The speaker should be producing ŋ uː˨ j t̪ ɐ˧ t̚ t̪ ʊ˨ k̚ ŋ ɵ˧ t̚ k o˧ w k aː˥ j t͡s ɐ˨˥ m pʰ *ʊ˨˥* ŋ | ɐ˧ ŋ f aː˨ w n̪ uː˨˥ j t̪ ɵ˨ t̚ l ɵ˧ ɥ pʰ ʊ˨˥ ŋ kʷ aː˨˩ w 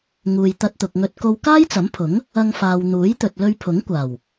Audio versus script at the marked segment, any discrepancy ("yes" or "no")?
no